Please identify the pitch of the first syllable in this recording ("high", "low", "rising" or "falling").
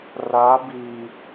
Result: rising